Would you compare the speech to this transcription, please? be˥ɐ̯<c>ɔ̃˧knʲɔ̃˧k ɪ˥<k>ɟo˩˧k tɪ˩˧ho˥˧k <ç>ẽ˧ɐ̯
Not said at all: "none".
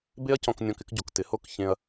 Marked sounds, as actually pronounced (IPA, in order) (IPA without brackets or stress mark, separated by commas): c, k, ç